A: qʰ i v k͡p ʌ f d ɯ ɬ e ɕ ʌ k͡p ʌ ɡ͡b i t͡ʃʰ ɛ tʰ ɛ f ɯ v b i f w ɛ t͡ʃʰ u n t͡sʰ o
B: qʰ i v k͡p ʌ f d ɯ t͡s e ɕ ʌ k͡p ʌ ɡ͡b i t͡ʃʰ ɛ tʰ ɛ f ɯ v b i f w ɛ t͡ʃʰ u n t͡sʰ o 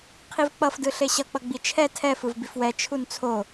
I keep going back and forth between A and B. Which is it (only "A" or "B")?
A